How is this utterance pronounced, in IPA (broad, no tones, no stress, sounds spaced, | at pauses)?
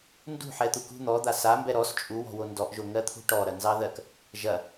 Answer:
n d ṳ ħ ɛ t̪ u k ṳ n̪ ɔ d̪ a s a m b ɛ ɾ ɔ s t͡ʃʼ u w ɔ̤ w o n d ɔ ʔ ʒ o ŋ ɜ t̪ʰ ṳ ʈ ɔ ɾ ɐ n z ɑ ð ɜ k | ʒ ɐ